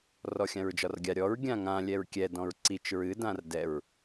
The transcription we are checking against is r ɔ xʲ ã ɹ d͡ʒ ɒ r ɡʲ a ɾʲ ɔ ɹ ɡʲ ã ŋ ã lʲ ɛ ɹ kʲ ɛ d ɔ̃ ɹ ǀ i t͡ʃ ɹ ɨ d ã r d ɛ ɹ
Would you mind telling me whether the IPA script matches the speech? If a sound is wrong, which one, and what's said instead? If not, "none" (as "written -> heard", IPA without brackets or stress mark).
none